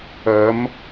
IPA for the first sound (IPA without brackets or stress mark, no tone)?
ɐ